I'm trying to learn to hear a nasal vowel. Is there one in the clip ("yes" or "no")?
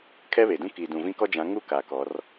yes